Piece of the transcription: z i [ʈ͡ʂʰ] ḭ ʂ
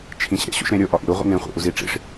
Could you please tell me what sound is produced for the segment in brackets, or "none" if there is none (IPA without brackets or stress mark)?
ʈ͡ʂ